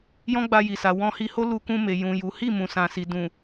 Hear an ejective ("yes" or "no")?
no